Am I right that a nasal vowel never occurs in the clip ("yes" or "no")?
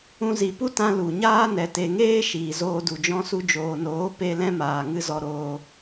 no